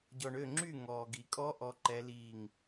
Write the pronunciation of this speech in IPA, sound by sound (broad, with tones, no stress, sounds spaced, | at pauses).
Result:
ɟ ɔ˨ ɳ ø˥˨ ŋ͡ǁ y˥˨ ŋ ɔː˨ ɡ i˨ kʼ ɔ˧˥ ʔ ɔ˧˥ ǃ ɛ˧˥ l iː˥˨ ŋ